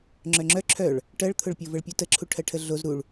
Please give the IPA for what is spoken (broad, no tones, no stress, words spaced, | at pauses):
ŋ͡ǁœŋ͡ǁœ ǁʰœɭ | ʈɜɭt̪ʰʊɭpʲo vəɭpʲutəǁʰu ʈʰɜʈʰəɮoz ɾuɭ